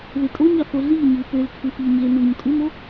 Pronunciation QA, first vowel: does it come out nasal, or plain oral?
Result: oral